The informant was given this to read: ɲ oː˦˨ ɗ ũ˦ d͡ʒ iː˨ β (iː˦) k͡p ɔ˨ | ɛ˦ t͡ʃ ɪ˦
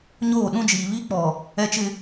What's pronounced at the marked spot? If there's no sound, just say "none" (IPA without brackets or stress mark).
i˦